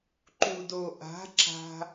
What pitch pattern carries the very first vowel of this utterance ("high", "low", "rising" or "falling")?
low